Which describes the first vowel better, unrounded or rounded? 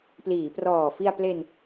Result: unrounded